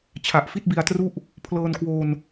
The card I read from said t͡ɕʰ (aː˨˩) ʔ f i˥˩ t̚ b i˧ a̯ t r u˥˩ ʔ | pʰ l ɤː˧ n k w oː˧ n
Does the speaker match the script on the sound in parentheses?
no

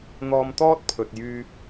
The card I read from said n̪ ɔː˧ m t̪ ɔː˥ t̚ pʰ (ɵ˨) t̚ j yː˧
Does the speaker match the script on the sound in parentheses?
yes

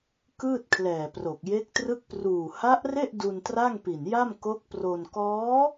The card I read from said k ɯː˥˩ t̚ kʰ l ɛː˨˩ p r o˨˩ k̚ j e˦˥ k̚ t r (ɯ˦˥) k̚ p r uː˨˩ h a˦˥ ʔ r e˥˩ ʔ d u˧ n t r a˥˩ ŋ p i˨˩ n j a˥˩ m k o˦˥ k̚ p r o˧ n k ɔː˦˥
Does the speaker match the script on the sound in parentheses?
no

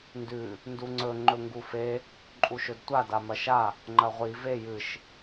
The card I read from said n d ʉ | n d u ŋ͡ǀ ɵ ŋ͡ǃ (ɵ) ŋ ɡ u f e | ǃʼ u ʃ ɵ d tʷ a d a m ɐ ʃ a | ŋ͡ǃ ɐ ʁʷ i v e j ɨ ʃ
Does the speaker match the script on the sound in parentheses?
yes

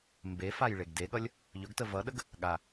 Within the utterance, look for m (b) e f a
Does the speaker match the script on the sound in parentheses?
yes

